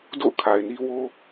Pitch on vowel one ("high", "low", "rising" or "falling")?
falling